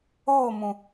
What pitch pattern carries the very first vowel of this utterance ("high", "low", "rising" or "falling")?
falling